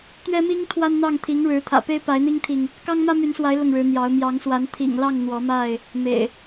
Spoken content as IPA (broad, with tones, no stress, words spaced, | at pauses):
t̪ɥɛ˦mi˦ŋ t̪ʰwa˦nn̪ɑ˥˨ŋ t̪ʰi˨˦ŋɻɻ̩˨˦t̪ʰä̰˨˩ pe˦ɪ̯pa˨˦ɪ̯n̪i˦ŋt̪ʰi˨ŋ | kɑ˦ŋmä˦my˨˦nswa˨˦ɪ̯ lʊ˥˨ŋɻɻ̩˨˦n̪jɑ˨˦ʊ̯ mjɑ˨˦ŋswa˨˦n t̪ʰḭ˨˩ŋlɑ˥˨ŋ n̪wɔ˨˦ma˥˨ɪ̯ | mḛ˨˩ɪ̯